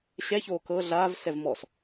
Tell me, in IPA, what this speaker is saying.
ɕ ɛ ç oː k ɤ ɮ aː v s ɛ v m ɔ s

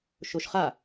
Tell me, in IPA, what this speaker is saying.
ʃ o ʃ χ a

